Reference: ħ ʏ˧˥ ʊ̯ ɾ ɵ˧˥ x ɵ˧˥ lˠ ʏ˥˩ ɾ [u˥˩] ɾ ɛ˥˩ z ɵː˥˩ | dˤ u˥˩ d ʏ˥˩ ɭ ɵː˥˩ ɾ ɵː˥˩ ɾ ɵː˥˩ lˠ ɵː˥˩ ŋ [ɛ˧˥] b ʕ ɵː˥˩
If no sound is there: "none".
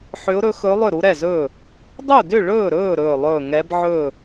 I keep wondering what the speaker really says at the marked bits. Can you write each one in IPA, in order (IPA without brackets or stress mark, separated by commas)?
u˧˥, ɛ˧˥